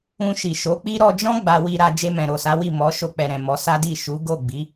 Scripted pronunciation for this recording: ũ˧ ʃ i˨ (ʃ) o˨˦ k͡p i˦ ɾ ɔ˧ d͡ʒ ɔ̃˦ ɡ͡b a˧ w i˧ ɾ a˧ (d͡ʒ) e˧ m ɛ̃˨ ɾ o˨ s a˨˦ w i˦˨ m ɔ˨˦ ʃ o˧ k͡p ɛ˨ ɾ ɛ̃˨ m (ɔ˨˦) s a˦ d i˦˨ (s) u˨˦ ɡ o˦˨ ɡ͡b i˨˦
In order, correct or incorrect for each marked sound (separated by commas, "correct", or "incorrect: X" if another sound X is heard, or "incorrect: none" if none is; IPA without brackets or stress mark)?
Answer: correct, correct, correct, incorrect: ʃ